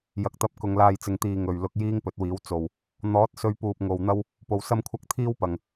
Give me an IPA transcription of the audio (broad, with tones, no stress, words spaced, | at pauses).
jɐ˨k̚t̪ɐ˧p̚ kʊ˨ŋ laː˨jt͡sɪ˨ŋt̪iː˨ ŋɵ˨ɥlʊ˧k̚ jiː˥ŋpɵ˨˥t̚wiː˨˥w t͡so˨w | n̪ɔː˨˥t̚sɵ˧ɥpuː˨p̚ ŋo˨w n̪ɐ˥w | po˨wsɐ˥mkʷʰɐ˥k̚ t̪ʰiː˥wpɐ˨ŋ